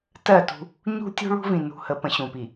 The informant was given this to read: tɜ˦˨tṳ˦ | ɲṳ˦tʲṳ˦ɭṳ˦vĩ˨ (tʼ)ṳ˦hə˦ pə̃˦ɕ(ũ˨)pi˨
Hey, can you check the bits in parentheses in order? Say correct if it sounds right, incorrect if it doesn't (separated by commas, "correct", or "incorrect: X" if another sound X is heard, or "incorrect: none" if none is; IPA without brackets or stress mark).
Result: incorrect: n, correct